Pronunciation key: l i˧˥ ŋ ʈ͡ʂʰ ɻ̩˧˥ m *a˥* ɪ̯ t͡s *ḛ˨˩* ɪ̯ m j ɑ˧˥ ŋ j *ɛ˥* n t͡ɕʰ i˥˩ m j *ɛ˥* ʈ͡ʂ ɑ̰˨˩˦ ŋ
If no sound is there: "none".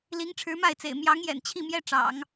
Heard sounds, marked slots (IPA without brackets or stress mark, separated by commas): a˥˩, ḛ˨˩, ɛ̰˨˩, ɛ˥